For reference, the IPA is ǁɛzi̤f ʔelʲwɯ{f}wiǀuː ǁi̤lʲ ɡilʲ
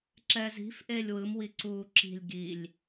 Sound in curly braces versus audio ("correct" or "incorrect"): incorrect